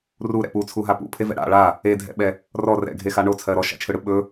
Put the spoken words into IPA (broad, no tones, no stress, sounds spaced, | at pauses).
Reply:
r u ɾ ɛ̰ p u t͡sʰ u ɦ a p ṵ pʰ e v ɛ̰ ɽ a̰ ɭ a | e dʱ ɛ̰ ɓ ɛ | r ɔ r ɛ̰ ɡʱ e x a ɳ o t͡sʰ ɜ ɾ ɔ ʃ a̰ t͡ʃʰ ɯ ɽ ɯ ɓ ɵ